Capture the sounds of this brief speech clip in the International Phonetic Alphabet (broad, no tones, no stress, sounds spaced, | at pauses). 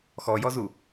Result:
x ɔ j ɔ z u